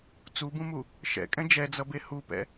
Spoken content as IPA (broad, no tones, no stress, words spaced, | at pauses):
t͡subũmu | ʃɛ̰ kʼɛ̃d͡ʒɛd͡zʌ behupɛ̰